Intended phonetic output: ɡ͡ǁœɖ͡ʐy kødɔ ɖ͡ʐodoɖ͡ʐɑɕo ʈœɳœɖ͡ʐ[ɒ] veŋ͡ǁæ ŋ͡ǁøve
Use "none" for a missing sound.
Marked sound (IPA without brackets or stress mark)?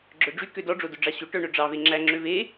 ɑ